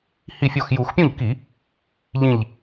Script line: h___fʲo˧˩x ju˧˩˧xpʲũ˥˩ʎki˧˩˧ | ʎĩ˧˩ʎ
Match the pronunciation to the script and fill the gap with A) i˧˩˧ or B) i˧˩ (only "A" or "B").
B